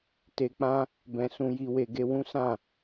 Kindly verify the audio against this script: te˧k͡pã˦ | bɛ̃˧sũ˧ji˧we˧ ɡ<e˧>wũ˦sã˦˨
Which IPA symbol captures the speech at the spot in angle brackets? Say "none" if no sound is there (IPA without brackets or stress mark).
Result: e˧